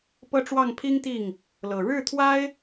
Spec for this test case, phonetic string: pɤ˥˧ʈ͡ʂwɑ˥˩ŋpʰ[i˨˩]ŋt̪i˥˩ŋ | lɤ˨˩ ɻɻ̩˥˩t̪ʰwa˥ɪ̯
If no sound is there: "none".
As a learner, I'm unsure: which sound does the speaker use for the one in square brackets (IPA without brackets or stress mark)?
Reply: i˥